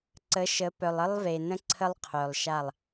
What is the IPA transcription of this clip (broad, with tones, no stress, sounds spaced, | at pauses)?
ǀ ə˨˦ ʃ ə˨˦ p œ˨ lˠ ə˦ lˠ v e˨ n ə̃˦ ǀʰ ə˦ lˠ qʰ œ˨ lˠ ʃ a˦˨ lˠ